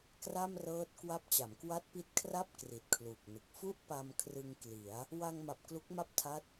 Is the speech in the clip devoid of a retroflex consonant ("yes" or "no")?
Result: yes